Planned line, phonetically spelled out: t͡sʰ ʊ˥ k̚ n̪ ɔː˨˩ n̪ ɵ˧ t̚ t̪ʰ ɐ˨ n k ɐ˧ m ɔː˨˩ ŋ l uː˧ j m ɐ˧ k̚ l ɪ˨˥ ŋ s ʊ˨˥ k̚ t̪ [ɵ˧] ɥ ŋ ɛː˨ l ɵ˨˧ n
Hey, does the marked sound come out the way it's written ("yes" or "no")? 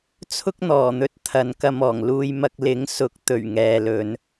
no